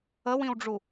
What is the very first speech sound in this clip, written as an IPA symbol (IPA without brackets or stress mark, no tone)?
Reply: ə